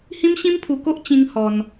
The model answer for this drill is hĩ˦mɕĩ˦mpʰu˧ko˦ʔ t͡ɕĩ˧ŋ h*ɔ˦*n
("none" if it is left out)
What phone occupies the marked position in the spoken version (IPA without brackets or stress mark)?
ɔ˧